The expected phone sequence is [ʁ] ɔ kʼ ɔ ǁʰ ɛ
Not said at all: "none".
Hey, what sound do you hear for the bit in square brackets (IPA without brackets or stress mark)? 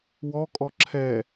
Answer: w